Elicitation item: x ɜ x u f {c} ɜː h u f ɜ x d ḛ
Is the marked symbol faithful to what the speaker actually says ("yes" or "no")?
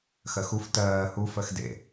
no